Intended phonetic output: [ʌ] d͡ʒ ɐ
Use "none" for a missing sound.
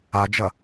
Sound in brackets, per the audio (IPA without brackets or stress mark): a